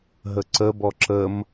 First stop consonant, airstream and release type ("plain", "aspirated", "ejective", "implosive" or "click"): click